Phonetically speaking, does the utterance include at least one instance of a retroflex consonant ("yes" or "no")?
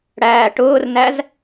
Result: yes